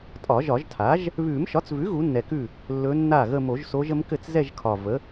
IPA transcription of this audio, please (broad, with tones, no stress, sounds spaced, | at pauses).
tʼ ɒ˨˩˦ ʒ ɒ˨˩˦ ʒ tʰ a˩˥ ʒ | β ʉ˨˩˦ m ʃ ɒ˩˥ t͡s v ʉ˩˥ ɣ u˩˥ nː ɛ˨˩ k ʉ˥˩ | lː ɵ˧˥ nː a˥˩ ɣ ə˥˧ m o˨˩˦ ʒ s o˧˥ ʒ ə˧˥ m k ɘ˥˩ t͡s z ɛ˥˧ ʒ kʰ ɒ˨˩ v ə˩˥